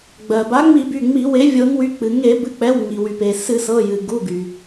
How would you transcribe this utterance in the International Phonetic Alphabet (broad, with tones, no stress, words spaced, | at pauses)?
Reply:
ɡ͡bɜ˩ba˩˥ŋ͡mi˧˩˧ by˩˧˩ŋ͡mi˧˩˧we˩˥ vʲɤ˩˥ŋwy˩˧˩k͡pɨ˩ ŋe˧˩˧bɨ˩˧˩k͡pɛ˩˧˩w ŋi˩wy˩pe˩ sɨ˧˩˧sɤ˩˧˩jɨ˩ɡu˩˧˩ ɡy˩